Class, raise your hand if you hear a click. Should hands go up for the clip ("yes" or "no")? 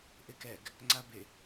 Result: yes